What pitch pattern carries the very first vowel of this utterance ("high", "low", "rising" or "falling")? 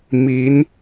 rising